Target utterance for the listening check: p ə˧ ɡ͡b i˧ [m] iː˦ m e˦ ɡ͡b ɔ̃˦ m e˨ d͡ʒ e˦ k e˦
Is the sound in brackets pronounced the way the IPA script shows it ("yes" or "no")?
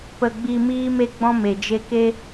yes